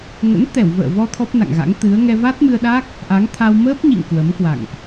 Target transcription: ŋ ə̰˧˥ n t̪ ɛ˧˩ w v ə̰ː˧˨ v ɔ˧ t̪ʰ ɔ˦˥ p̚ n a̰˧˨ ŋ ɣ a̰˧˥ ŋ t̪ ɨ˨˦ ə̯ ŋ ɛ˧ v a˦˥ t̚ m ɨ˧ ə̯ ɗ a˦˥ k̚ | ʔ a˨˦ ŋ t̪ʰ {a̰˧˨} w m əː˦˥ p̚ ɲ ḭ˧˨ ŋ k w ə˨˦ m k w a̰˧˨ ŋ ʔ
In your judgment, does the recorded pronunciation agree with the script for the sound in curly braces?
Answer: no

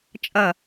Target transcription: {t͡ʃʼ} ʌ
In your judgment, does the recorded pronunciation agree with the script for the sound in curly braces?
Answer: yes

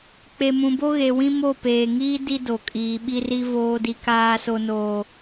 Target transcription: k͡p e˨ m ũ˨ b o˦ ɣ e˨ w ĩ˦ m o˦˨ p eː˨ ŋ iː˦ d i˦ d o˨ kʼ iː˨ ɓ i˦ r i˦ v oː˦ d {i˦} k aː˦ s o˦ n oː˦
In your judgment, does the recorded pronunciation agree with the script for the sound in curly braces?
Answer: yes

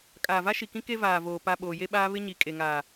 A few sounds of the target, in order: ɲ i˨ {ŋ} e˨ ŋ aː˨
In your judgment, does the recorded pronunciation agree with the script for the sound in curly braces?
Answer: no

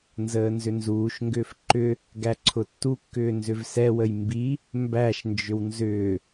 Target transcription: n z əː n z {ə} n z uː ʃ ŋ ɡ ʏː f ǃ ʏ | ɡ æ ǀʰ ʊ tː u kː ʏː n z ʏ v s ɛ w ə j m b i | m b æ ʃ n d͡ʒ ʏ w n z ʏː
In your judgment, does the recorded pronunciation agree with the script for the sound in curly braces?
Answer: no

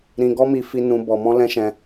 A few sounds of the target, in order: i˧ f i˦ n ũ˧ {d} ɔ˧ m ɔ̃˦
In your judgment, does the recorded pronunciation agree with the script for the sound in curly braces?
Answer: no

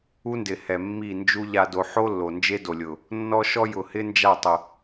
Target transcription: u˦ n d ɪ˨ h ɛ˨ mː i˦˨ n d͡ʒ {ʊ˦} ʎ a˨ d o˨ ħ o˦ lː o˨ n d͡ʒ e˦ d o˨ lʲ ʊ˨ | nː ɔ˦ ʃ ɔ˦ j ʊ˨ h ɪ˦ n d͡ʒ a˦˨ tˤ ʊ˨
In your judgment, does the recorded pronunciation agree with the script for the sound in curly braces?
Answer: no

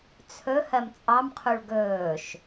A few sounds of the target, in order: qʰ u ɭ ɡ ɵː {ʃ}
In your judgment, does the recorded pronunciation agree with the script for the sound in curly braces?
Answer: yes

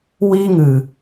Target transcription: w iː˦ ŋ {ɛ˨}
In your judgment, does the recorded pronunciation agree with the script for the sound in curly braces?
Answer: no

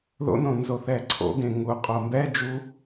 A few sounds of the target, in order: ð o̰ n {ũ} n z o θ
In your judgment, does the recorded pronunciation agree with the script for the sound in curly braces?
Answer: no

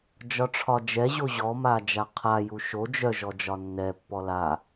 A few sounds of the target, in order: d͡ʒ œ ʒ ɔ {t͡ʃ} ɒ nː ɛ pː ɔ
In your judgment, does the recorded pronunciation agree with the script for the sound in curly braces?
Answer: no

